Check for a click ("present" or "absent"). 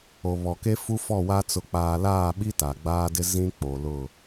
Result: absent